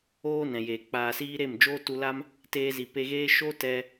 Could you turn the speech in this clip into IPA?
oː˦ nɛ̃˨jeː˨ k͡paː˨siː˧ ɾe˦˨md͡ʒoː˦tu˧la˦m | teː˧zi˨pe˧ɣeː˦ ʃo˦tɛ˧

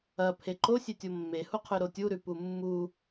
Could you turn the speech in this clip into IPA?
ɐpʰe ǃosʲetʲo mːehuqʰʉ ɾotʲuɾʉ pumːu

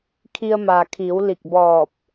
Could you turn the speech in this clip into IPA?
kʰi˧ə̯maː˩kʰiː˩˧w li˧˩k̚ bɔː˧˩p̚

